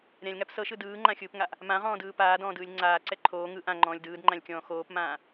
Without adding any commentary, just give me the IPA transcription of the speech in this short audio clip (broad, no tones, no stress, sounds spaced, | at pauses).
ɾʲ ã lʲ ŋ a p s ɤ ʃ ɯ d ɯː ŋ͡ǃ ã xʲ ɯː p ŋ a ʔ | m ã ʁ ɔ̃ː d ɯː p aː d ɔ̃ː d ɯː lʲ ŋ͡ǀ aː ǀ ɛ ǃʰ oː ŋ ɯ ʔ ã ŋ͡ǃ ɔ̃ː lʲ d ɯː d ŋ͡ǃ ã lʲ kʲ ɔ̃ː x oː p m ãː